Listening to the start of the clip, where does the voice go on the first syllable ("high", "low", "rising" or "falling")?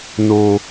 high